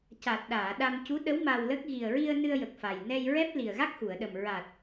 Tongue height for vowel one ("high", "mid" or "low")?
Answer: low